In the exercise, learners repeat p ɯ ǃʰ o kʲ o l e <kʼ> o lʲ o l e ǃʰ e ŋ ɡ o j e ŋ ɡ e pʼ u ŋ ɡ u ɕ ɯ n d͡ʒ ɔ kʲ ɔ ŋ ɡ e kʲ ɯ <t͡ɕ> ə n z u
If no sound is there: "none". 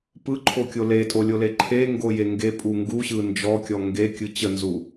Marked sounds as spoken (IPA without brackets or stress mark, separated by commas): tʼ, t͡ɕ